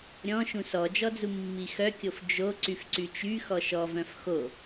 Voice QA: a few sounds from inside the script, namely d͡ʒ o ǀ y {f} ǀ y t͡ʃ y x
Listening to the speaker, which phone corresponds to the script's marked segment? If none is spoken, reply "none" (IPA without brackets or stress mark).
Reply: f